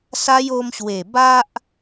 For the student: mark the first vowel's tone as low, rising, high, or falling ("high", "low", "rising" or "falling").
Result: high